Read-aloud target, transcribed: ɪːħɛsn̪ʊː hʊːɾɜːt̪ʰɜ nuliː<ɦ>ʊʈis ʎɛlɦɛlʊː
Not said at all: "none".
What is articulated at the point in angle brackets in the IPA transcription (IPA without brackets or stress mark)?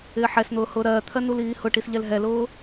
h